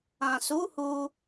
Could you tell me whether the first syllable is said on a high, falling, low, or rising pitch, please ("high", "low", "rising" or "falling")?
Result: low